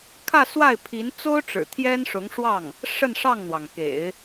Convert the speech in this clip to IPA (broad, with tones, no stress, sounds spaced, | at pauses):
kʰ ä˥˧ s w a˥˩ ɪ̯ pʰ i˧˥ n t͡s o˥ ʊ̯ ʈ͡ʂ ɻ̩˨˩ t̪ʰ j ɛ˥ n ʂ ʊ˧˥ ŋ ʂ w ɑ˥˩ ŋ | ʂ ə˥˧ n ʂ ɑ˥˩ ŋ n̪ w ɑ˩ ŋ k ḛ˨˩˦ ɪ̯